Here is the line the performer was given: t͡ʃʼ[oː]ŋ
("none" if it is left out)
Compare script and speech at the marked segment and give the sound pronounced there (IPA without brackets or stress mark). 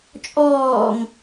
ɔː